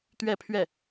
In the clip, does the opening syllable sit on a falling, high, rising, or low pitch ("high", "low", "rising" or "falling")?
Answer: falling